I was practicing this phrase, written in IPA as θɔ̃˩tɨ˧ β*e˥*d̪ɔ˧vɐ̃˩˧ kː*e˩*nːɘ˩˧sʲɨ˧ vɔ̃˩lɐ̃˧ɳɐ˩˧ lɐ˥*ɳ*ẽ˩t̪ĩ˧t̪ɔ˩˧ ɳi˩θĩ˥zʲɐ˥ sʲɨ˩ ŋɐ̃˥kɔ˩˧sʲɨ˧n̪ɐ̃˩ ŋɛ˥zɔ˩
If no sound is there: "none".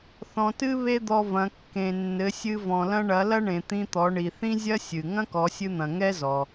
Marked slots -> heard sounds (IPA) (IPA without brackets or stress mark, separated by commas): e˥, ẽ˩, ɳ